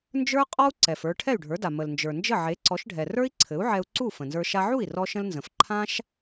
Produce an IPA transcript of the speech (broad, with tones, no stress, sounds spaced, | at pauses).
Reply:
n d͡ʒ ə˞˥ qʼ ɔ˥ u̯ ǀ ɛ˩ f ə˞˧ ʈʰ ɛ˥˩ y̯ ɖʱ ə˞˩˥ d a˩ m ə˩ l n d͡ʒ ə˞˩ n d͡ʒ ə˥˩ ʕ e˩˥ ǀ ɔ˩˥ ʃ ɖʱ ɛ˩ r ə˞˥ i̯ ǀʰ ɘ˩˥ u̯ ʕ ɛ˧ u̯ ǀ u˥˩ f ə̃˩ n z ə˞˧ ʃ a˧ ʕ u˥˩ i̯ r ɔ˥ ʃ ə̃˥ l n z ə̃˩˥ f ǃʰ ã˥ ʃ